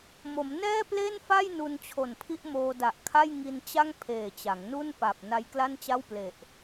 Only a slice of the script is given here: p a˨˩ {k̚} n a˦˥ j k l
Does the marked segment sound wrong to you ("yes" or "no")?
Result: yes